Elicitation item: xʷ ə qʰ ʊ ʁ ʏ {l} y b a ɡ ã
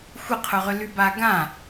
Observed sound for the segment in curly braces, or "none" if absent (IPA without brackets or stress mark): l